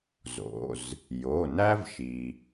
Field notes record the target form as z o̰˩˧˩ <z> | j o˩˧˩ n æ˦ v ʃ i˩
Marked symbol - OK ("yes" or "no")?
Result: yes